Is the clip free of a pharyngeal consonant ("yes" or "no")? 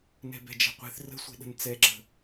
yes